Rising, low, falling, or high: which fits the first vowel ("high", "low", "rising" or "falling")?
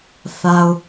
low